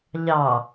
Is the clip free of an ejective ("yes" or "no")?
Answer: yes